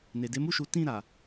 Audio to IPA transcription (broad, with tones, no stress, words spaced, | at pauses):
ne˨ de˨˦mu˦˨ʃu˨˦ tĩ˦˨ɾa˨